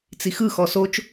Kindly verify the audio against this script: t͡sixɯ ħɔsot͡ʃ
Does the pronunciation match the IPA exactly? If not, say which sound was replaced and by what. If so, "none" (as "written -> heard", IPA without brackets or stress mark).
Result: ħ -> x